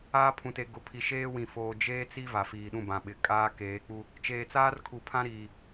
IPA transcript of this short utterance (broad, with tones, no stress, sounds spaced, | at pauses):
aː˦ pʰ ũ˨ t e˨ ɡ ʊ˨ pʰ i˨ ʃ eː˦ w ĩ˨ f oː˨ d͡ʒ eː˦ t͡s i˦ v a˨ f iː˨ ɗ ũ˦˨ b ã˨ ɓ ɪ˨ kʼ aː˦ k eː˨˦ k͡p u˦ | t͡ʃ eː˨ t͡s aː˦ r kʰ u˨ pʰ ã˦ ɾ iː˨